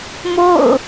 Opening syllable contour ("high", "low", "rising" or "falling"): falling